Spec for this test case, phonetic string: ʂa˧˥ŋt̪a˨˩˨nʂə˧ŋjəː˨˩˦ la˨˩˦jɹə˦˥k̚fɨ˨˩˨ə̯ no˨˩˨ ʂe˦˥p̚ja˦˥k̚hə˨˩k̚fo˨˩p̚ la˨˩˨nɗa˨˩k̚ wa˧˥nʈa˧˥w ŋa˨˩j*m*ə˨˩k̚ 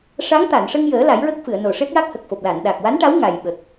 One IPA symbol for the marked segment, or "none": ɓ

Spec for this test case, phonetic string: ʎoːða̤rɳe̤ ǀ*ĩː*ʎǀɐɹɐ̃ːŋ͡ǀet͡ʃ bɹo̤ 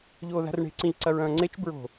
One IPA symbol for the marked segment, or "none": ĩ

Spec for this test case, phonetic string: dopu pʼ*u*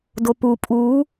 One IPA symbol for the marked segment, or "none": uː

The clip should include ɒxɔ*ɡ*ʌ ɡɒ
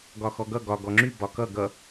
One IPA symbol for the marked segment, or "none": ɡ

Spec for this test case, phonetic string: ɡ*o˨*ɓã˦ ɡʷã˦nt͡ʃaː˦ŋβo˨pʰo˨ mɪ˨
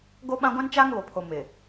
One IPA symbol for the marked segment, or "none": o˦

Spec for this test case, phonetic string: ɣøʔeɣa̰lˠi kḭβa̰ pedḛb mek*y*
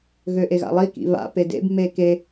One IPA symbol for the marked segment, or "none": e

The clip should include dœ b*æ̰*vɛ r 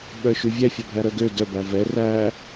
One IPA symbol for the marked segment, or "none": æ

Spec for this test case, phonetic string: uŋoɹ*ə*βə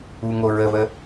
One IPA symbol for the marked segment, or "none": ə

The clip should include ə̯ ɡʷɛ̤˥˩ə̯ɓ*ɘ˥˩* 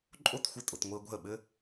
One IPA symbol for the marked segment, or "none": ɘ˥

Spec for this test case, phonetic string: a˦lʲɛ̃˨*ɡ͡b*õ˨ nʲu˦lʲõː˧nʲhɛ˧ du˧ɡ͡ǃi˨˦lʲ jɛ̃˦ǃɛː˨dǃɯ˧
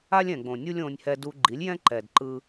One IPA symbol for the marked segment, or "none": ɡ͡b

